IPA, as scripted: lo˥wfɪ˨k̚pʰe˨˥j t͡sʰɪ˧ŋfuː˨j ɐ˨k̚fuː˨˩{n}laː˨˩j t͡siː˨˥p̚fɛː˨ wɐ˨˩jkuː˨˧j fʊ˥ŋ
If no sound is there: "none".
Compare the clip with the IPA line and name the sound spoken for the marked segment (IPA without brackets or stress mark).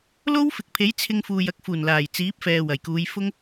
n